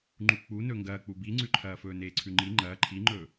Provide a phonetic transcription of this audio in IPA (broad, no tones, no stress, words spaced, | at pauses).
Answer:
ŋ͡ǃuk͡punɵ ŋɡɐːk͡pu biŋ͡ǀʉǃʰɐːfɵː neːǀʰʉŋ͡ǃi ŋ͡ǃɐː ǃʰiŋ͡ǃɵː